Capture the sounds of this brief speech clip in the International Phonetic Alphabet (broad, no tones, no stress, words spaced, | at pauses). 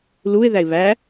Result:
luɪ̯ ðæɪ̯βæ